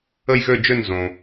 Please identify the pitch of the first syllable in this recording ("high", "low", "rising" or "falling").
falling